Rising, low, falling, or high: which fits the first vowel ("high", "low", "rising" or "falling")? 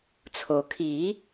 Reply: low